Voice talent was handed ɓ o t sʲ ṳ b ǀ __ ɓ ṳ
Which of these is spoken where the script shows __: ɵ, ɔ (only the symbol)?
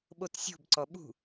ɔ